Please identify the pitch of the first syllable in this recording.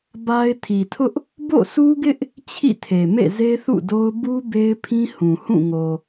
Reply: high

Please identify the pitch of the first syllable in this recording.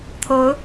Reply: rising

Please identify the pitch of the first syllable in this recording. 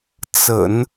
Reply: low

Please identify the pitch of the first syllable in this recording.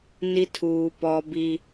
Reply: high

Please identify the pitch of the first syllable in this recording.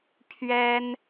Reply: high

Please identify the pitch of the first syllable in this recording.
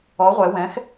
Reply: rising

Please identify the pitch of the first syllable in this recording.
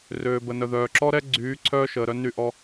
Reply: low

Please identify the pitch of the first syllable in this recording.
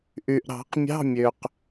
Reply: low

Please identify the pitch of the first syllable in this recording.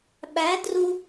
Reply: rising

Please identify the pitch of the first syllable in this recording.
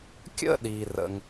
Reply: high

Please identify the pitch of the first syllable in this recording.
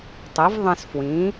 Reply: rising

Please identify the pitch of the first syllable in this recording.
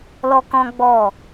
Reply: high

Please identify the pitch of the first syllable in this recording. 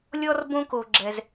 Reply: high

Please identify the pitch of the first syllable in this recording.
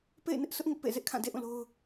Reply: falling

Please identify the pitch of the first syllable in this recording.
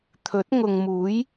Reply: rising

